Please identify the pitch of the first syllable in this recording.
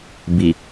low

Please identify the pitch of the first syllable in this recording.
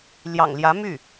low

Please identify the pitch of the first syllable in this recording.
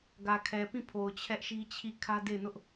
low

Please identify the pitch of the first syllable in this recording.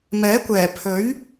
rising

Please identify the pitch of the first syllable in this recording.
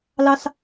high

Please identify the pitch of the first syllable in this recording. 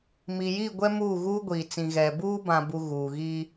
low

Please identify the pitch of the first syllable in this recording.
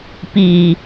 low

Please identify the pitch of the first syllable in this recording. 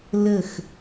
falling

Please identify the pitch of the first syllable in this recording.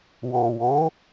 low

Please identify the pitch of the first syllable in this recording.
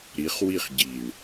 rising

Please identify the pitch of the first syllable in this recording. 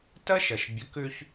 high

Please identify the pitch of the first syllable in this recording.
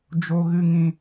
low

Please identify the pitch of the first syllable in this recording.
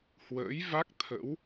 rising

